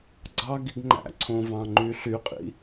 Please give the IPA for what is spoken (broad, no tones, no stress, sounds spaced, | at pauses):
ɡ͡ǀ ɑ ɡ i ɡ ŋ͡ǃ æ̰ ǀʰ õ v ɑ̃ ŋ͡ǃ y ɬ y qʼ ḭ